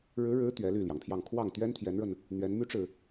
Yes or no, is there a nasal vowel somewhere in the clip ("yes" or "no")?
no